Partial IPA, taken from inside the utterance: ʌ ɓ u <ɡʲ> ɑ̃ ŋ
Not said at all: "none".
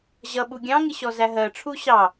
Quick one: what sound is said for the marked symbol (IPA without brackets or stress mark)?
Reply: ɡʲ